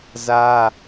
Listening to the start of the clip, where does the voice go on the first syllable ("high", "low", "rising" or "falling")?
high